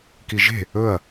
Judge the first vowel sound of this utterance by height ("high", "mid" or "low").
high